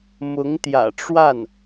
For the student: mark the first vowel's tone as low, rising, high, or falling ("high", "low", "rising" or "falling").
rising